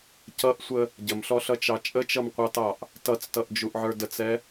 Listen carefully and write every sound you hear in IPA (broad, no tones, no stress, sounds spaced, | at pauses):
c ʌ ʔ sʷ ə | ɟ ə m ɬ ɔ ɬ ʌ t͡ʃ ɑ t͡ʃʼ ə t͡ʃ ʌ m qʷ ɑ t ɑ ʔ | t ʌ t͡s t ʌ ʔ d͡ʒ u ʔ ʕ ə˞ d ə t͡s ɛ